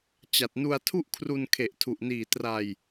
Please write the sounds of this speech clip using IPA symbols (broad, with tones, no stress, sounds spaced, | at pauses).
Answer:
t͡ɕ a˨˩ t̚ n u˧ a̯ tʰ u˥˩ ʔ kʰ r u˧ n kʰ e˨˩ ʔ tʰ u˨˩ ʔ n iː˨˩ t r a˧ j